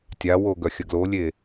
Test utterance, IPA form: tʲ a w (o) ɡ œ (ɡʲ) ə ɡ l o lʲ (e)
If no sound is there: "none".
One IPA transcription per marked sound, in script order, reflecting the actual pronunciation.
o, xʲ, e

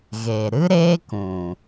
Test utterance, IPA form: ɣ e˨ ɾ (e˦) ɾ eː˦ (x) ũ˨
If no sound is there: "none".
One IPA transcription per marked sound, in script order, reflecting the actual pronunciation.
ɨ˦, k

